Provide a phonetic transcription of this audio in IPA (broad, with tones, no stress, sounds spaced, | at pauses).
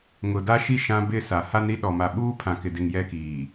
ŋ ʊ˨ d a˦ ʃ i˦ ʃ ã˦ b ɪ˦˨ s a˨ h a˦ n ɾ i˦ ɗ ɔ˨ m a˨ ɓ uː˦ pʰ ã˨ k ɪ˨ d e˨ ŋ j ɛ˦ k iː˨